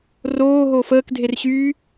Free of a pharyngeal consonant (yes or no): yes